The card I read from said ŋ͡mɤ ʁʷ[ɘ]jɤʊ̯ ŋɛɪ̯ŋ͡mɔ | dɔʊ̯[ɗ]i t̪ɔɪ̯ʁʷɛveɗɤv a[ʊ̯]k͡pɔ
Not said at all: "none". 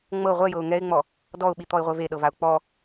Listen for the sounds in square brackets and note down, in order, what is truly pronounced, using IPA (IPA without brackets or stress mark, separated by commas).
ɛ, ɓ, ʊ̯